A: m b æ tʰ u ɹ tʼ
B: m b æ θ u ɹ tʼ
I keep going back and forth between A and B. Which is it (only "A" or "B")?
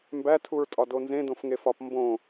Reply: A